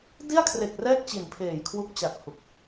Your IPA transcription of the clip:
d i˥˩ a̯ kʰ r e˨˩ k̚ r ɛː˥˩ k̚ t͡ɕ i˨˩ n pʰ eː˨˩ j kʰ w u˦˥ k̚ t͡ɕ a˨˩ k̚ h u˨˩ k̚

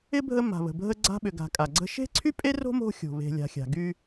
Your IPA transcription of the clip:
ɪ˥ bʱ ə˦ m a̤˩ β ə̤˩ bʱ ə˦ ɡ͡ǀ a̤˦ ɓ ʏ˨ ɡ a̤˨ kʼ a˩ ɡ͡ǀ ə̤˥ ʃ e̤˥ ǀʰ y˥ pʼ e˥ r o̤˥ m o̤˦ xʲ o̤˩ β e̤˨ lʲ a̤˨ xʲ a̤˩ ɡ y˦

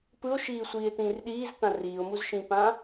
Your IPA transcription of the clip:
p ɯ o̯ ʃ iː sʷ iː e̯ t̪ ĩː r ɗ iː z t̪ ã r iː o̯ m u z ʃ ĩː p ã

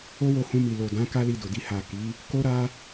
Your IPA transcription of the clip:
o˦ w o˧ h ũ˧ m i˨ l o˨ d ã˨˦ k a˦ l i˧ d o˨ d i˧ h a˨ k i˨˦ | k o˦ ɾ a˦

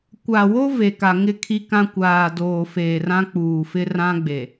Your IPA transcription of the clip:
kʷ a˨ w o˦ v e˨ k a˨ ŋ ɪ˦˨ kʰ i˦ k ã˦ kʷ aː˨ d oː˨ f eː˨ r ã˦ k͡p uː˨ f ɪ˦ r ã˦ ɡ͡b e˨

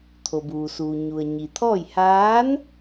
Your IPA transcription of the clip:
t̪ʰ o˩ b uː˩ s uː˩ ɲ u˩ ə̯ ɲ i˩ t̪ʰ ɔː˥˨ j h aː˧˥ n

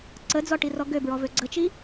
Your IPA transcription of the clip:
ǀ ə d͡z ɔ ʈ i r ɔ ɡ ø b ɹ ɔ v ø ɡ͡ǀ ə t͡ʃ i

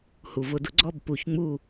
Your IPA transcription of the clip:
h u˩ v ʊ˧˩˧ d ʊ˩˥ ɡ͡ǀ ɔ˥˨ b p u˧˩˧ ç ŋ͡m u˥˨

